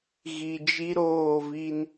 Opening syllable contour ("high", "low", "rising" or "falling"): low